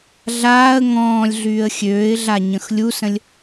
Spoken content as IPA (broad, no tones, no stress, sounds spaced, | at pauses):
ɮ aː ə̯ ŋ ɔ̃ː lʲ ɮ yː ə̯ xʲ øː ɪ̯ ɮ a ɲ ə̃ x lʲ u s ə̃ lʲ